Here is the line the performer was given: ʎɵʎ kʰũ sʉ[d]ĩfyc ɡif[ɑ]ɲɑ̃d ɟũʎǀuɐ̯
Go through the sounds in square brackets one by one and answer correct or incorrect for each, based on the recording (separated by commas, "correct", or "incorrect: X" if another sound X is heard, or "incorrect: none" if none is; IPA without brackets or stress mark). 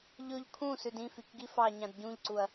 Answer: correct, correct